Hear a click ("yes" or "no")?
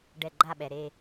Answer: yes